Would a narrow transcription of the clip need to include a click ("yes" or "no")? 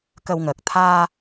no